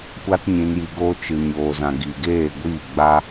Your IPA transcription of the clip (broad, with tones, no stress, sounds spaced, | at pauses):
kʷ a˦ t ɲ ĩ˧ n j i˧ ɡ oː˦ t͡ʃ ɨ˨ ɲ oː˨ z ã˨ ɡ i˨ ɡ eː˦˨ ɡʷ iː˦˨ ɡ͡b a˦